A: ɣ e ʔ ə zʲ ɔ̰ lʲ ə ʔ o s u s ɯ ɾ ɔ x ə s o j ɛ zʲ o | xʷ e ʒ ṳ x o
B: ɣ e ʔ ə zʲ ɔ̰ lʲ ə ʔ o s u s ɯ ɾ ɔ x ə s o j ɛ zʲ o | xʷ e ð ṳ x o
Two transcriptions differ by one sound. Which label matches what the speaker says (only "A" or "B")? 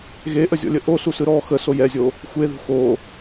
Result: B